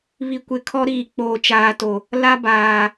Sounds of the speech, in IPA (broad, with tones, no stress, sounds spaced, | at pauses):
β i˨ kʷ ɪ˨ kʰ ɔ˦ ɾ iː˨ k͡p oː˨ t͡ʃ aː˨ t o˨ | l a˦ b aː˨